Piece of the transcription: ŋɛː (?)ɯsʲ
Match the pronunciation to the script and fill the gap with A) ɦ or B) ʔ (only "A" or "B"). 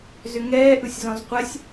B